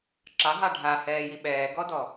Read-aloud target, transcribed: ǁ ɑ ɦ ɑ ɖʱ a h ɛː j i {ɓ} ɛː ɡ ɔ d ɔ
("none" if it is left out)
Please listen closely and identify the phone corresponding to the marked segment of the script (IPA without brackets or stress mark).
ɓ